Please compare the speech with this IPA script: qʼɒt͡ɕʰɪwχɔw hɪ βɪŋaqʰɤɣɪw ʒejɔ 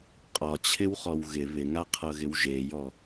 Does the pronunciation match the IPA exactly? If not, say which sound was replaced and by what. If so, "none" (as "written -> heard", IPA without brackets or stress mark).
h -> ɣ